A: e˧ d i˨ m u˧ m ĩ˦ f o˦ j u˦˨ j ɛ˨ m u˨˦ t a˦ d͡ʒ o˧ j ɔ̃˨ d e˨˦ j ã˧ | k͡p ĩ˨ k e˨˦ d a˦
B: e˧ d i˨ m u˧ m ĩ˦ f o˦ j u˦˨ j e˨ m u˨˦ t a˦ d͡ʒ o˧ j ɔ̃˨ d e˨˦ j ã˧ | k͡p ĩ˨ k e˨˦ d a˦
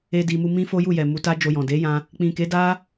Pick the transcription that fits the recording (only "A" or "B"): A